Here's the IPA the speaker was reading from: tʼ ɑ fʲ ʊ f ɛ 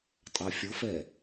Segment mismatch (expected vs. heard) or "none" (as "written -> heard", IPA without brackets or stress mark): none